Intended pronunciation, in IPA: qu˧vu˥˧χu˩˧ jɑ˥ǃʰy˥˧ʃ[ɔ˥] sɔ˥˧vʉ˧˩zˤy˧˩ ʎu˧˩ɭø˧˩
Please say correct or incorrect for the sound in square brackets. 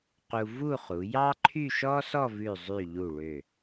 correct